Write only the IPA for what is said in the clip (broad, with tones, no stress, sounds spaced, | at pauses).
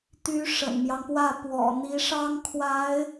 t̪ y˧˥ ʂ ə̰˨˩ n m j ɑ˦ ŋ p w ä˥˩ p w ɔ̰˨˩ n̪ i˧˥ ʂ ɑ˥ ŋ kʰ w a˧˥ ɪ̯